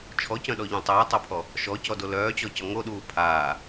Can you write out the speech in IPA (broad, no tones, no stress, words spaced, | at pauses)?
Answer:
t͡ʃʰɔcœ̃ɗɔʎũ tˤœːtˤopʰɔ | ʃɔcɔdo lœːt͡ɕɔcɔ ŋoɗuː pʰaː